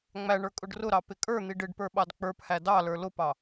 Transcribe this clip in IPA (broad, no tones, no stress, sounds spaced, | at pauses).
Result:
ŋ͡m æ ɳ ə˞ kʼ ʊ ɖ r ʊ ɾ ɑ p ɪ kʼ ə˞ n̪ i ɖ ɪ ɖ p ə˞ ɓ ɑ d k͡p ə˞ p h æ d ɑ l ə˞ l ʊ p ɑ